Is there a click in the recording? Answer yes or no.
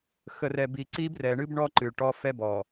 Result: yes